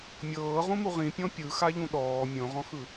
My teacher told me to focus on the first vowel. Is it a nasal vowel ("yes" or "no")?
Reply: no